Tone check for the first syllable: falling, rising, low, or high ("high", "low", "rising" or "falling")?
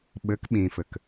rising